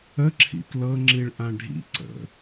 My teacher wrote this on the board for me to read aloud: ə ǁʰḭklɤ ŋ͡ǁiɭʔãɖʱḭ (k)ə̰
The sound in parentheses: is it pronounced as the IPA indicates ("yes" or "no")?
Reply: no